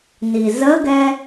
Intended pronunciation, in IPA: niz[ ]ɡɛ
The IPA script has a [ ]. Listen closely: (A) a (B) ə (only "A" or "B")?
B